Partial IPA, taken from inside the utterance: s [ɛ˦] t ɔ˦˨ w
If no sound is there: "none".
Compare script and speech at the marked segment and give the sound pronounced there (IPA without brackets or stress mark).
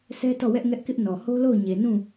ɛ˦